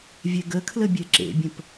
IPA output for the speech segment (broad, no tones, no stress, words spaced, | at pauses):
vʲɛɡəkʰlə bʲɛǁḛbʲə̃p